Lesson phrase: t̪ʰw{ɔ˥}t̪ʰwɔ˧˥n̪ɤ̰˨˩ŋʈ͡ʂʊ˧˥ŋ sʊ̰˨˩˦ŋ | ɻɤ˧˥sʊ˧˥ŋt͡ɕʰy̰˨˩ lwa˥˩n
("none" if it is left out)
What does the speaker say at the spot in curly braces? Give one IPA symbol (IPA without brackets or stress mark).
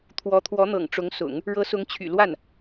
ɔ˧˥